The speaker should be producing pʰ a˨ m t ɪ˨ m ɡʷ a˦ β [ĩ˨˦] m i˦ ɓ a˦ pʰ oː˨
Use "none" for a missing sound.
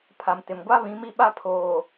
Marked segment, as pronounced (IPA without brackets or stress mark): ĩ˨˦